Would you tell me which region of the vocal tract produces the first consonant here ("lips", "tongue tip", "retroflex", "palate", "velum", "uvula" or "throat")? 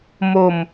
lips